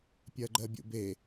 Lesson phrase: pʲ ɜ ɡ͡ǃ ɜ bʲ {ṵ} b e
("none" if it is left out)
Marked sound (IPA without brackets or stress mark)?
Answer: ṵ